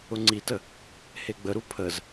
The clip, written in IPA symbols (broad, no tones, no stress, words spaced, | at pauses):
ʊŋ͡ǀitə | heɡ͡bəɾu pʰəz